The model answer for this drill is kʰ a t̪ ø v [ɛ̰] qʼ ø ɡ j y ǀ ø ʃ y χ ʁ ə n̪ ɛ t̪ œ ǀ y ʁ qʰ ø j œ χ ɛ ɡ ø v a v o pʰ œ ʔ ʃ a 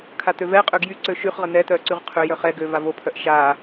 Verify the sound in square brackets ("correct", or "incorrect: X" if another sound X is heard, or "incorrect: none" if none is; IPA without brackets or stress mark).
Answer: incorrect: ɛ